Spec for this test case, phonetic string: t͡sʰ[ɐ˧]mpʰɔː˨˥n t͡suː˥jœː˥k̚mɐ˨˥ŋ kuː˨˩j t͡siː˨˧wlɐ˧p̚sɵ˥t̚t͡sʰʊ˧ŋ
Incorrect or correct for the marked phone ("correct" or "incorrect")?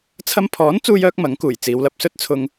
correct